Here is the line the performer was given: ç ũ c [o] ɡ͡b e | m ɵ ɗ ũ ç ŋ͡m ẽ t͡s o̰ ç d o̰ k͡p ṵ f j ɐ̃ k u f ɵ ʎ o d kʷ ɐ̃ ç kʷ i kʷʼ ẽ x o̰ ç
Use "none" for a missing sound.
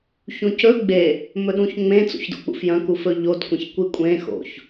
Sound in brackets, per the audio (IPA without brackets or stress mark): ɵ